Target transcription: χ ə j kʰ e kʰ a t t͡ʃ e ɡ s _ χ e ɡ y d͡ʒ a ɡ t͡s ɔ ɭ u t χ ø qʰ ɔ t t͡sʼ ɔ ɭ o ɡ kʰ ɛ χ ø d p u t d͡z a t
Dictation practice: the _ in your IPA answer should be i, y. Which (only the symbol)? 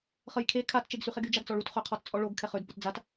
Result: y